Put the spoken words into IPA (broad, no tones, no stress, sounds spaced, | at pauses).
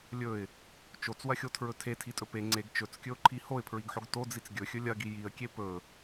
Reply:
lʲ ɵ ɪ̯ | t͡ʃ o t͡s w ɐ xʲ o tʰ ɹ ɵ tʰ e tʰ i tʼ ɵ p e ŋ͡ǀ e ɡ t͡ʃ ɵ t͡s kʲ ɵ ʊ̯ ǃʰ i h o ɪ̯ pʰ ɹ i ɡ ħ o ɡ t o d͡z i t͡s ɡʲ ɵ xʲ ɵ lʲ ɐ ɡ i j i ə̯ kʲ e p ɵ